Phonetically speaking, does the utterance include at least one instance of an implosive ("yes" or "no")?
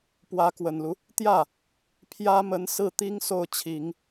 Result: no